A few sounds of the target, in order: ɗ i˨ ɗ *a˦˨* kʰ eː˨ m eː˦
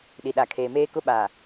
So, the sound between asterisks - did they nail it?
no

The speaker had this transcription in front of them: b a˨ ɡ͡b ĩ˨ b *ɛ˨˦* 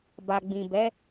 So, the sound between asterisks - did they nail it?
yes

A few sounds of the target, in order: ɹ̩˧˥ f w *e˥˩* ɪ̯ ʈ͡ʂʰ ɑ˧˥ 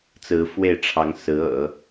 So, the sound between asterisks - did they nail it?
yes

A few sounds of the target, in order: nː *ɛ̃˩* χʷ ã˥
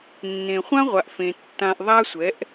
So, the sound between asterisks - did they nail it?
no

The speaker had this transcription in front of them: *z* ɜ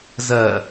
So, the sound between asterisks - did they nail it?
yes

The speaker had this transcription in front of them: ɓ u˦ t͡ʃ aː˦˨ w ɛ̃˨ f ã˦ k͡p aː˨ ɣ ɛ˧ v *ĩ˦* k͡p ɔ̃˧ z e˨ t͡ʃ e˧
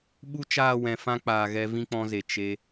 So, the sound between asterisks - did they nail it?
yes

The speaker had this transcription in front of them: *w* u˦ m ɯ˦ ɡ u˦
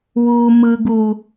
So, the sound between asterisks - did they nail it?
yes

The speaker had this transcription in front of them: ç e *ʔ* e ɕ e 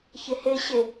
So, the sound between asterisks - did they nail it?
no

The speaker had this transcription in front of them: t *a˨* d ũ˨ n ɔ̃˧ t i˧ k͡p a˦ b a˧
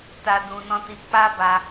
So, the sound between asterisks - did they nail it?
yes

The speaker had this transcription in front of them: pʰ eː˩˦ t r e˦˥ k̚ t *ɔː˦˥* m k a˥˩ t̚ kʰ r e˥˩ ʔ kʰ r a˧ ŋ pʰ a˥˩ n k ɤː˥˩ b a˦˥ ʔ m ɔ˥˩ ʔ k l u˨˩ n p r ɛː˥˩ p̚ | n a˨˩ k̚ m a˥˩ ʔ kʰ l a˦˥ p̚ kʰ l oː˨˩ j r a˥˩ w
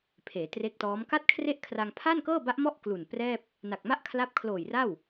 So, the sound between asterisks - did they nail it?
yes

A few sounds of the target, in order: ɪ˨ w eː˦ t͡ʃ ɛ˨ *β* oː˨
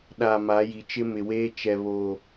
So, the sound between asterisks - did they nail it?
yes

